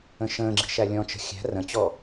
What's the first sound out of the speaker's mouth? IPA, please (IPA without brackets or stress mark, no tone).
ə̃